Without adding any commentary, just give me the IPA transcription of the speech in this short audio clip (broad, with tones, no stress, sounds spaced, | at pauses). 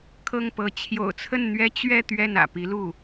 kʰ ɤ˥˩ ŋ p ɤ˧˥ t͡ɕʰ j o̰˨˩ ʊ̯ t͡sʰ ə˥˩ n n̪ ɥ ɛ˥ t͡ɕ ɥ ɛ˥˧ t̪ ɥ ɛ˥˩ n ä̰˨˩ p i˧˥ l u˥˩